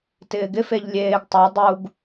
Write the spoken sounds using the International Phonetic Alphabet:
t ɪː ɡ ɪ f e ʎ lʲ eː ɡ tˤ a dˤ u ɡ

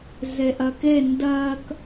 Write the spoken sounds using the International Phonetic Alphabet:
z e ʔ ɜ k e n d ɜ k

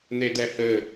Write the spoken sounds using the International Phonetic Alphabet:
n̪ e d ɛ h ɘ

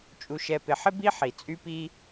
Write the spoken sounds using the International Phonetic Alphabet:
t͡ʃʼ u˧ ʃ ɛ˧ p ɪ˧ ħ ɪ˦ b i˦ ħ i˨ t͡sʼ y˦ p i˦

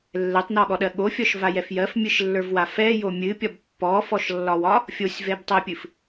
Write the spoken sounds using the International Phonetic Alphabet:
lː ɛ tˤ n ɔ ɠ ɔ ɗ ɜ ɠ o fʲ ɔ ʃ v a j ɛ f j ɜ f mʲ ɨ ʃ lː ə˞ v w a f ɛ j o mʲ ɨ pʲ ɒ b pː ɔ f ɔ ʃ lː ɒ w ɒ | fʲ o sʲ v ɛ b tˤ ɛ pʲ ɨ f

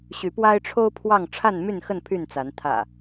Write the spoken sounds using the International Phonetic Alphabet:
ɕ y˨˦ p w a˦ ɪ̯ ʈ͡ʂʰ o˦ ʊ̯ pʰ w ɑ˥˨ ŋ ʈ͡ʂʰ a˥˨ n m y˥˨ n x ə˥˨ n pʰ y˥˨ n t͡s a˨˦ n t̪ʰ ä̰˨˩

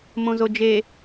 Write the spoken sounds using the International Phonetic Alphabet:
m õ z o d͡ʒ e

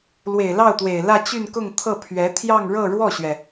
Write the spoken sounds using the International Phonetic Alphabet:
l w e˨˩ ɪ̯ l ɑ˥˩ ʊ̯ t̪ w e˨˩ ɪ̯ l ä˥˧ t͡ɕ y˥˧ n k ʊ˥˧ ŋ t̪ʰ ɤ˥˩ pʰ ɥ ɛ˧˥ t̪ʰ j ɑ˥˧ ŋ ɻ ɤ˥˧ ɻ w ɔ˥˩ ɕ ɥ ɛ˩

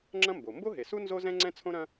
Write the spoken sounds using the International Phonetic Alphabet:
ŋ͡ǁ ɐ̃˥ m b o˩ m b o˥ ɦ e˩ s u˥ n z o˥ z ɛ̃˥ ŋ͡ǀ ɛ̃˥ t͡sʰ õ˥ ɾ ɐ̃˥

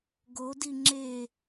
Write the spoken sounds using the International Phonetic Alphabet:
ɡ o d i ŋ͡ǁ e

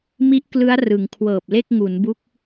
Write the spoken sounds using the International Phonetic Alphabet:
m i˦˥ ʔ k l ɯ˦˥ a̯ r ɯ˩˦ ŋ kʰ w ɤː˨˩ p̚ l e˥˩ k̚ ŋ u˩˦ n b u˦˥ k̚

